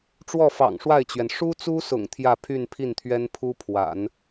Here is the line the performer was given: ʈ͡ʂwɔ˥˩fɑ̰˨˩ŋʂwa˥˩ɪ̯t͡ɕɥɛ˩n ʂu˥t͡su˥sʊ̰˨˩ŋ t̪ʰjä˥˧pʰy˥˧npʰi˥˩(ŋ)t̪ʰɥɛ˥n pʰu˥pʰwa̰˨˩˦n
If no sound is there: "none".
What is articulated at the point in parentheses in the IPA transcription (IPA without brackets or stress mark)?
n